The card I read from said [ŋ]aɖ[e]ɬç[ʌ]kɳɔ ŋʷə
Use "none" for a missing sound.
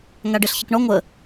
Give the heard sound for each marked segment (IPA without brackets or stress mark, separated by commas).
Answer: ŋ, e, ə